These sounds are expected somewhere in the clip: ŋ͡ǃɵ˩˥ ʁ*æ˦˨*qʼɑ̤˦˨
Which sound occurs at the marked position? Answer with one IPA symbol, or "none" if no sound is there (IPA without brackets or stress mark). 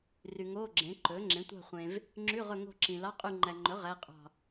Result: æ˧˥˧